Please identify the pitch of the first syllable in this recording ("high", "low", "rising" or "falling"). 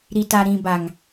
low